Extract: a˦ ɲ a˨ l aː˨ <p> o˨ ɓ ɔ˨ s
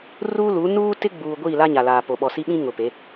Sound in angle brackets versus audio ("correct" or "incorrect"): correct